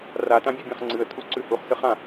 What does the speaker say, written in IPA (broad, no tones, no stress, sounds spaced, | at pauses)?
r a t ã bʲ ʉ bʲ ã χ ŋ͡ǀ ɨ ə̯ tʰ u ǀ ʉ h u χ s ɨ χ ã